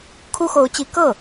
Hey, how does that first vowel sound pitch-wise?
high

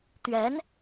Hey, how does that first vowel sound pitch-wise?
rising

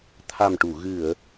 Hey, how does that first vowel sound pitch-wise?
low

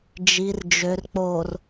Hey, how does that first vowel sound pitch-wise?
low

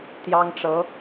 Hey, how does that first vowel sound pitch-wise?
high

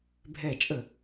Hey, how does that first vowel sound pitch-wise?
falling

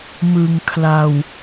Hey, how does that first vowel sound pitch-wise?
low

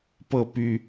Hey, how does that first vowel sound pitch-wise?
falling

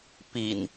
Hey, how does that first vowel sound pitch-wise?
low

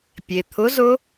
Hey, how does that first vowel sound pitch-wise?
low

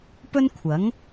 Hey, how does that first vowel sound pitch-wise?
high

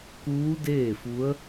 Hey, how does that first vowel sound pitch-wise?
rising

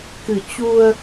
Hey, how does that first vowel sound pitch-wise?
low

